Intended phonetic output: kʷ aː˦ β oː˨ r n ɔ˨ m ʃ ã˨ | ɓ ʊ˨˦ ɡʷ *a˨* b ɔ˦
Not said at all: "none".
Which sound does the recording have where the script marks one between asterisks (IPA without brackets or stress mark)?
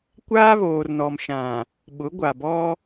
a˨